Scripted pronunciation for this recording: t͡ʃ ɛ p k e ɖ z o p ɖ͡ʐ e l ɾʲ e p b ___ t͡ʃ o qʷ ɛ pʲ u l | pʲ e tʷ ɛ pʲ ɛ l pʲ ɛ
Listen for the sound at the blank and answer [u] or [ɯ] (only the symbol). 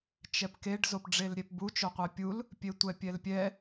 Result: u